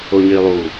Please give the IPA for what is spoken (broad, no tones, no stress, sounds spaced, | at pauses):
o ɲ i lˠ u